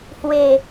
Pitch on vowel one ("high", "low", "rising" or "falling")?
low